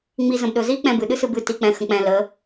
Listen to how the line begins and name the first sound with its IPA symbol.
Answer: ŋ͡m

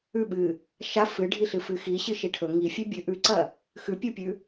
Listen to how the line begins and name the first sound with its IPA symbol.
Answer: ʉ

